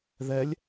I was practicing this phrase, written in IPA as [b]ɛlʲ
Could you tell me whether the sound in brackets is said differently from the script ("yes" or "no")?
yes